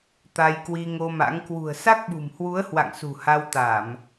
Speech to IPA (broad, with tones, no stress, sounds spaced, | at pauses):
t̪ a˧ j k w i˧ ŋ o˧ m a̰˧˥ ŋ k w ṳ˨˩ ə̯ s a˦˥ k̚ ɓ ṳ˨˩ m h w u˨˦ ə̯ h w a̰˧˨ ŋ s ṳ˨˩ h a˧ w t̪ a˧˩˨ m